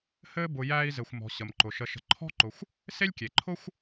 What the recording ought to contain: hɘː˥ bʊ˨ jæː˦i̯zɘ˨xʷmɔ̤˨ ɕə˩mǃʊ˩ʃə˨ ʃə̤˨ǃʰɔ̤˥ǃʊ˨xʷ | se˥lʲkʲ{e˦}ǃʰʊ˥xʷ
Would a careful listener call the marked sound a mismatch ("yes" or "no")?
yes